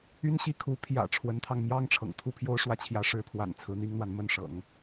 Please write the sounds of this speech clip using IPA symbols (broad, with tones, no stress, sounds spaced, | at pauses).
y˥ n ɕ i˥ kʰ u˧˥ pʰ j ä̰˨˩ ʈ͡ʂʰ w ə˧˥ n t̪ʰ ɑ˧ ŋ m j ɑ˥ ŋ ʈ͡ʂʰ ɤ̰˨˩ ŋ t̪ʰ u˥˩ pʰ j o˥ ʊ̯ ʂ w ä˥˩ t͡ɕʰ j ä˧˥ ʂ ɻ̩˧˥ pʰ w a̰˨˩ n t͡sʰ ɹ̩˧˥ n̪ i˥ ŋ n̪ w a˨ n m ə˥˩ n ʂ ɤ̰˨˩˦ ŋ